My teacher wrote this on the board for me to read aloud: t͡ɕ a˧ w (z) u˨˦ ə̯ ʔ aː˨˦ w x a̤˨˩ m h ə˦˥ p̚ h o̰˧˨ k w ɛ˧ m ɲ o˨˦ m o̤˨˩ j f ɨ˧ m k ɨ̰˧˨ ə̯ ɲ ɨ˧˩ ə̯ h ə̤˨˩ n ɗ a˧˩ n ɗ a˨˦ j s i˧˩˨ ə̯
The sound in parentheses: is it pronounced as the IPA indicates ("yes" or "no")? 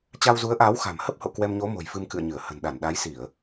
yes